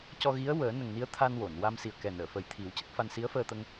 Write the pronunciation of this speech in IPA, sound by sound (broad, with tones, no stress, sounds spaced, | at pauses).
c ɔ˧ ɣ i˧˥ ə̯ w əː˨˩˦ n ə˨˩ ŋ n i˧˥ ə̯ t̪ʰ a˧ n w o˨˩˨ n w a˧ m s i˨˩ ə̯ k ɛ˨˩ n əː˨˩˨ f ə˨˩ j t̪ʰ i˨˩˦ w c ə˦˥ k̚ f a˧ n s i˧˥ ə̯ f əː˧ t̪ ə˧ ŋ